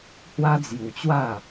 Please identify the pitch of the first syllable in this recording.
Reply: high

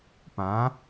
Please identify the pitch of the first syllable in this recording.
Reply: rising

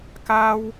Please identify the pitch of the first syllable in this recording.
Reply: high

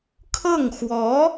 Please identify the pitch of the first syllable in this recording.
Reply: falling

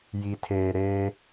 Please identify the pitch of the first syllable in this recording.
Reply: low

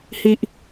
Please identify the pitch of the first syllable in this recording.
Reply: low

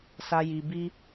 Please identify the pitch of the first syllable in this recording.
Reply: high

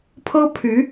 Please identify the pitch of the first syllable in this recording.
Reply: high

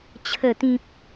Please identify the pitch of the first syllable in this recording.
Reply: low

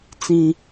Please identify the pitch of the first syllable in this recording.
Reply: high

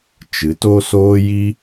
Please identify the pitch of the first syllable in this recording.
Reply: rising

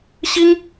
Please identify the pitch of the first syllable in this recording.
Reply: high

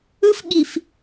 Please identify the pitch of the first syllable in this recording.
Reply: high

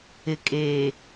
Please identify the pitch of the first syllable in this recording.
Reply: low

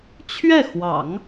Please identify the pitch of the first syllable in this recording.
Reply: falling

